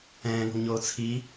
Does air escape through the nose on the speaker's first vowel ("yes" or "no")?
yes